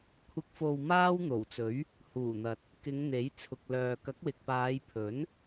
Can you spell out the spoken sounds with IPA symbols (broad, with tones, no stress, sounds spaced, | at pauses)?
kʷʰ ɪ˧ k̚ f o˧ w m aː˥ w n̪ o˨˩ w t͡s ɵ˨˥ ɥ | h uː˨˩ n̪ ɐ˨ t̚ | k ɪ˨˧ ŋ n̪ e˨˥ j t͡sʰ ʊ˨ k̚ l œː˨ k ɐ˨˥ k̚ w ɪ˨ k̚ p aː˨˧ j pʰ ɵ˨˥ n